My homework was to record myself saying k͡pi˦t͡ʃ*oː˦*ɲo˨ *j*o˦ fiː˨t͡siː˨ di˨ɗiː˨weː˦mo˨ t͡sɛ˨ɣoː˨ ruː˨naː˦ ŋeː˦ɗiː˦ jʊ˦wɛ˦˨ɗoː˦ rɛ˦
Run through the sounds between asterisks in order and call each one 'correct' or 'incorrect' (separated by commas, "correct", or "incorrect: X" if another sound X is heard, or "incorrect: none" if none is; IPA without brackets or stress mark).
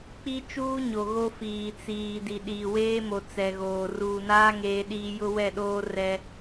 incorrect: uː˦, incorrect: ɣ